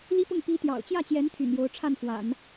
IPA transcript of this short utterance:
l i˥ p ʊ˥˩ ŋ p i˧˥ t̪ j ɑ̰˨˩ ʊ̯ t͡ɕ j ä˥˩ t͡ɕ j ɛ˧˥ n t̪ʰ y̰˨˩ n j o˧˥ ʊ̯ ʈ͡ʂʰ a˥˩ n f w a̰˨˩˦ n

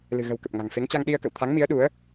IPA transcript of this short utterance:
l ɨ̤˨˩ ɣ ə̤˨˩ w k ə˨˩ p̚ ŋ a̤˨˩ ŋ f e˨˦ ŋ t͡ɕ a˧ ŋ ɗ i˧ ə̯ k ə̰˧˨ w t̪ʰ a˨˦ ŋ m i˨˦ ə̯ ɗ u˨˦ ə̯

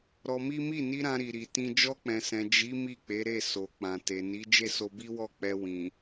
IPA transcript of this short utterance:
ɾ ɔ˧ m i˦ m i˦˨ n i˧ ɾ ã˧ ɾ i˨ ɾ i˨ t ĩ˧ d͡ʒ ɔ˧ k͡p ɛ̃˨ s ɛ̃˨ d͡ʒ i˨˦ m i˦˨ k͡p e˨˦ ɾ e˦˨ s o˨ k͡p ã˨ t e˨ n i˨˦ d͡ʒ e˦˨ s o˧ b i˦ w ɔ˦˨ k͡p ɛ˧ w ĩ˨

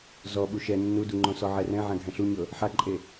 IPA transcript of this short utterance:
z ɔ ɓ u ʃ ɛ nː u d u ŋ͡ǃ õ s ɔ ʕ ɛ r ɛ̃ ʕ ã ɡʱ ɛ̃ ɬ u ɲ ɤ | ħ a ǃʼ e

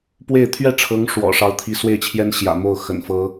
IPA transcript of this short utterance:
p w e˥˧ ɪ̯ t̪ʰ ɥ ɛ˥˩ ʈ͡ʂʰ ɤ˧˥ ŋ ʂ w ɔ̰˨˩ ʂ ɑ˧˥ ʊ̯ t̪ʰ i˧˥ s w e˥˩ ɪ̯ t͡ɕʰ j ɛ˥ n ɕ j ä̰˨˩ m o˥˩ ʊ̯ x ə̰˨˩ n f ɤ˧˥

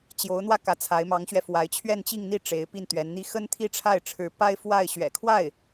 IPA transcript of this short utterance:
t͡ɕ j o˧˥ ʊ̯ n̪ w ä˥˩ k ä˧˥ t͡sʰ a˧˥ ɪ̯ m ɑ˧˥ ŋ ɕ ɥ ɛ˧ f w a˧˥ ɪ̯ t͡ɕʰ ɥ ɛ˥˧ n t͡ɕ i˥˧ ŋ n̪ i˥˩ ʈ͡ʂ e˧˥ ɪ̯ p i˥˩ n t̪ ɥ ɛ˧˥ n n̪ i˥ x ə˥ n t̪ʰ i˥˧ ʈ͡ʂʰ a˥˩ ɪ̯ ʈ͡ʂʰ ɻ̩˧˥ p a˥ ɪ̯ f w a˥˩ ɪ̯ ɕ ɥ ɛ̰˨˩ kʰ w a˥˩ ɪ̯

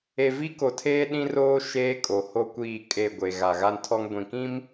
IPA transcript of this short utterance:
e˨ v i˦ k o˨ tʰ eː˦ ɗ ĩ˦ r oː˦ ʃ eː˦ kʼ o˨ h o˦ kʷ iː˦˨ kʼ e˦˨ ɡʷ e˨ ɣ a˨ ɣ a˦ n tʰ ɔ˦ ŋ ɡʷ ĩ˨ k ĩ˦ m

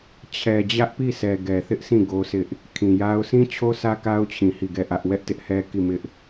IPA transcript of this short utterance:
t͡ɕʰ ɛ˨ d͡ʑ ä˦ ʔ p i˦˨ s ɛ˨ ɡ ɛ˨ θ ɪ˦ ʔ s ĩ˦˨ ɡ o˦ sʰ ɪ˦ ʔ | kʰ ĩ˨ j a˦ ʊ̯ sʰ ĩ˦ t͡ɕʰ o˦ sʰ ä˦ k a˦ ʊ̯ t͡ɕʰ ĩ˨ h i˦˨ ɡ ɛ˦˨ ʔ ä˦ ʔ w ɛ˦ ʔ t ɪ˦ ʔ h ɛ˦ k i˦˨ m ɪ˦ ʔ

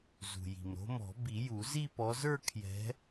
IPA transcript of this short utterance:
z ṳ˩ j i̤˩ m ɾ o̤˨˦ m ɔ̤˨˩˦ b i˨˩˦ j u˨˩˦ z i˥˧ p ɔ˨˦ z ə˞˥˧ kʰ j ɛ̤˨˦

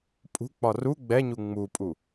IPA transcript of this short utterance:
pʼ ṳ k͡p ɒ r u ɡ͡b ɛ ɲ u ŋ͡m u pʼ u

